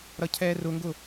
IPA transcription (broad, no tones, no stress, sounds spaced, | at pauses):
ɾ ʌ cʰ ɛː r ʊ ŋ ɡ ʊ